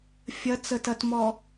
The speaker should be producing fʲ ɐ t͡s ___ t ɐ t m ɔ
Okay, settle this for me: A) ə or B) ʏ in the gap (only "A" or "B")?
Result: A